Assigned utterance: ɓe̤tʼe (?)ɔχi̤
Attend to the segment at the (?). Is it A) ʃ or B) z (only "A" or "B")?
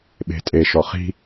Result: A